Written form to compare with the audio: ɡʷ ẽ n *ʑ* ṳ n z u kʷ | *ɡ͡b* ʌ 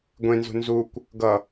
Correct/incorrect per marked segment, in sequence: incorrect: z, incorrect: ɡ

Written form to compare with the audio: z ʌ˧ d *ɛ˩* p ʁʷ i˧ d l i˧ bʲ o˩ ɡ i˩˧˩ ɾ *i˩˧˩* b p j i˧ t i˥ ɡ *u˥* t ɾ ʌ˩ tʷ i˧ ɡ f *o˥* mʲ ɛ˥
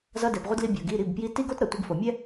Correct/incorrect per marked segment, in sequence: correct, correct, incorrect: o˥, incorrect: o˩

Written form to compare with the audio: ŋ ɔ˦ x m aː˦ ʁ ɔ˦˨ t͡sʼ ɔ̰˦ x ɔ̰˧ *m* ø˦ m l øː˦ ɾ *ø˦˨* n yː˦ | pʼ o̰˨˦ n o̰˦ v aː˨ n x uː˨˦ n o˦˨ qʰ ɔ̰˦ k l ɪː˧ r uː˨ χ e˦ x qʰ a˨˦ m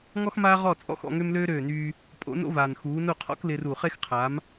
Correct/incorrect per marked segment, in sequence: incorrect: ŋ, incorrect: øː˦˨

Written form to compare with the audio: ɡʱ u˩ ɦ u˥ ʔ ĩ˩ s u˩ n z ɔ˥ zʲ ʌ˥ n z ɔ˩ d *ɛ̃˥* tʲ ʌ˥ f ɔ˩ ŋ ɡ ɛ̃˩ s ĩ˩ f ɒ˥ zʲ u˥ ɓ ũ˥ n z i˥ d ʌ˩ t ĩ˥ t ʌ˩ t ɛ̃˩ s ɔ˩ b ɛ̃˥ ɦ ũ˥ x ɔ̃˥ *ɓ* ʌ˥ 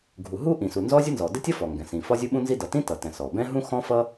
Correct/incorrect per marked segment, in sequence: incorrect: ɛ˥, incorrect: f

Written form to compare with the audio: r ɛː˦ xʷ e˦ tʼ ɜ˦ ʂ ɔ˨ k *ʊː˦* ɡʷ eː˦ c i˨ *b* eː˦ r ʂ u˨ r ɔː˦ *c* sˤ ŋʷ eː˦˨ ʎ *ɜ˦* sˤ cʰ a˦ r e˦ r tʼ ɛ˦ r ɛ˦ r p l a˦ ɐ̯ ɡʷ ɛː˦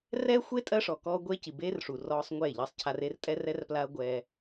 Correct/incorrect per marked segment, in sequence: incorrect: ɔː˦, correct, incorrect: none, correct

